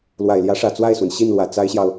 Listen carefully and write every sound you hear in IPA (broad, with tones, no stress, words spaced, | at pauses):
lwa˨˩ɪ̯ljä˧˥ʂä˨˩ t͡swa˥˩ɪ̯swə˩n ɕi˥˩nlwä˨˩ t͡sa˥ɪ̯ɕjɑ˨ʊ̯